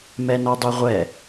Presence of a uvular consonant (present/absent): present